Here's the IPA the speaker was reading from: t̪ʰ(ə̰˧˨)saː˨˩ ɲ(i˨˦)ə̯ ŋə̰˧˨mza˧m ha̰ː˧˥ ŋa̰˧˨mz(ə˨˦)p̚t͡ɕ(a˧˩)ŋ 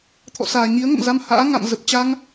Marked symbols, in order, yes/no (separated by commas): no, yes, no, no